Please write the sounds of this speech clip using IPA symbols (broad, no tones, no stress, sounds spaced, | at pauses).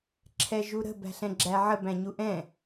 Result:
ǁʰ ɛ ʒ u ɾ ə̤ b æ̤ ɬ ɛ̃ ɡ͡ǁ æ ʕ ə b æ̃ ɲ u ʔ ɛ̃